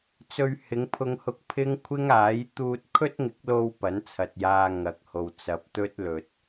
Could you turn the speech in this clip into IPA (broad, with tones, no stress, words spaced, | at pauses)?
t͡sɵ˧ɥhɪ˨˧ŋpʰʊ˧ŋhʊ˧k̚ pʰɪ˥ŋkʷʰɪ˥ŋaː˨˥j t̪uː˧t̚kʰɵ˥t̚ŋɪ˨˥k̚lo˧w pɐ˨˥nt͡sʰɐ˨t̚jaː˧ ŋɐ˨˥k̚ho˨w t͡sɐ˨p̚ t̪ɵ˥t̚lɵ˨t̚